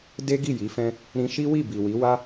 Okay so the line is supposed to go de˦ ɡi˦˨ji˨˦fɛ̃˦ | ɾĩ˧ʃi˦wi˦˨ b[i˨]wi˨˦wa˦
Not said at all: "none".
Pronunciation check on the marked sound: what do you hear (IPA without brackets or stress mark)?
i˨